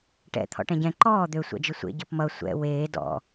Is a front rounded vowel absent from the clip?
no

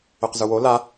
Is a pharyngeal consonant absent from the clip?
yes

